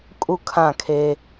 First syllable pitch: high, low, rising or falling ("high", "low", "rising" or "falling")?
falling